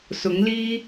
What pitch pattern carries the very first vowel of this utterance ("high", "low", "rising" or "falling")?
rising